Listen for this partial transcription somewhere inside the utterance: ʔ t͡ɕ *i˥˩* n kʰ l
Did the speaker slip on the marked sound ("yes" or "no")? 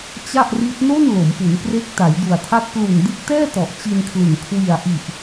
yes